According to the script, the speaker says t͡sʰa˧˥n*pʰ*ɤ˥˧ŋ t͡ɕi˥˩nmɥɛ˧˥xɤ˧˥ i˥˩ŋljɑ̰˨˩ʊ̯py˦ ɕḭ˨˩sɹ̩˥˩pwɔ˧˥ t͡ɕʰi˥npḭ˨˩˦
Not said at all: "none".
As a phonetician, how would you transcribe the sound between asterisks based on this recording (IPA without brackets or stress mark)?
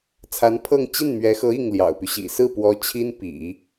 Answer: pʰ